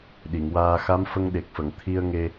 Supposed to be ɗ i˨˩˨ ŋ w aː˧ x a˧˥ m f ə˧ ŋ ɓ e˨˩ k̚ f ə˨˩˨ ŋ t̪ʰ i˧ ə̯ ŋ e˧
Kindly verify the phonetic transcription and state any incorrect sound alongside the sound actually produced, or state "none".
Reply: ɓ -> ɗ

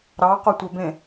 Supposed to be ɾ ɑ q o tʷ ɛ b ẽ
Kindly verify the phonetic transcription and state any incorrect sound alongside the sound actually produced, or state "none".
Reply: none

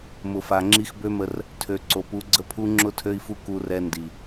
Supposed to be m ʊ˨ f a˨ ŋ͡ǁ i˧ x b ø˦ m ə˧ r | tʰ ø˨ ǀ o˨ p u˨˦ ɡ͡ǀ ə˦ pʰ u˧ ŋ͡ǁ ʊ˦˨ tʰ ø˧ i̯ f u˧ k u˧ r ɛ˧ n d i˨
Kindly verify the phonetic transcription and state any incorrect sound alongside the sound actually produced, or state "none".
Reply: none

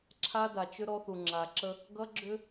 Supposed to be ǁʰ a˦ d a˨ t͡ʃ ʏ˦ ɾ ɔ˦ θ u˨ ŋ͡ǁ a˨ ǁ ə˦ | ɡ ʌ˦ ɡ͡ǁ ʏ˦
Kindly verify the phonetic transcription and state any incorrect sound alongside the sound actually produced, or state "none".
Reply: none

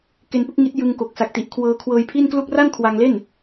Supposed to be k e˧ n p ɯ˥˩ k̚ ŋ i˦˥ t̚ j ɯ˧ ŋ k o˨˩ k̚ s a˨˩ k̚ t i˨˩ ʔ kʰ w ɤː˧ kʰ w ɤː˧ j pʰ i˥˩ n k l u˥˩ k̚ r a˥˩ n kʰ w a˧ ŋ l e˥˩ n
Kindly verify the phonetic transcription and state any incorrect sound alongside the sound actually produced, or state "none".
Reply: none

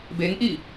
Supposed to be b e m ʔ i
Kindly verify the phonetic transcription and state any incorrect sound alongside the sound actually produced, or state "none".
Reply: m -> ŋ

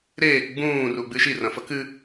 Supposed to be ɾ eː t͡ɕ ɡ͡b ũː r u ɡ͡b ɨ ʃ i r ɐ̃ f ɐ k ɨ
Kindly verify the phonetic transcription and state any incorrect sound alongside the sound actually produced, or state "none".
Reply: t͡ɕ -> k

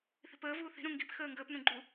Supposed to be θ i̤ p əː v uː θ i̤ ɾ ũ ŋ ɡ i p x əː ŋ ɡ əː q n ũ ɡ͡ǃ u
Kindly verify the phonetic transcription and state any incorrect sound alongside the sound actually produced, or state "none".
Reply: q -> p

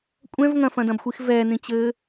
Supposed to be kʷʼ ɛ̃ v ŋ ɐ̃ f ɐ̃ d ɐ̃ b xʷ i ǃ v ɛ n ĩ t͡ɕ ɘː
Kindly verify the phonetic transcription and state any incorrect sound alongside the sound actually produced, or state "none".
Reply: ǃ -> x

